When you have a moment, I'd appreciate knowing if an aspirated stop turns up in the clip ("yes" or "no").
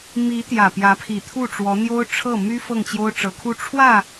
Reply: yes